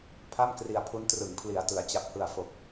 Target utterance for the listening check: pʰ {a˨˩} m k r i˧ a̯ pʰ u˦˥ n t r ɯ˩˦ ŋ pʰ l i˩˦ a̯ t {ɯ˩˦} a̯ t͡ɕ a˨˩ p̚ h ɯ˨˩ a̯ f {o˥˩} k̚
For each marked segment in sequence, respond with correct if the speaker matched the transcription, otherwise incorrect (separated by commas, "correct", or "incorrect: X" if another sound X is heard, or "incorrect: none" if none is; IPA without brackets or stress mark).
incorrect: a˥˩, correct, incorrect: o˨˩